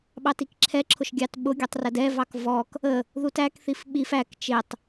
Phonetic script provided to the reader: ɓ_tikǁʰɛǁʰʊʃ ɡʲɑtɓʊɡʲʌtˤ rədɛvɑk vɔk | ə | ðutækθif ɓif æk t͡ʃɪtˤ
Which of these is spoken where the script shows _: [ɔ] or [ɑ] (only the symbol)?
ɑ